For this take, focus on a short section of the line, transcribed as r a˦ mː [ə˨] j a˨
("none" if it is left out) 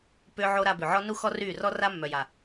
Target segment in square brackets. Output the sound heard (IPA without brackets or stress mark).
œ˨